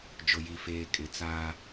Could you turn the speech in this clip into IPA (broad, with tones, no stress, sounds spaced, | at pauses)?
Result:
d͡ʒ ʊ˨ j i˨ f eː˨ kʼ ɪ˨˦ t͡s aː˦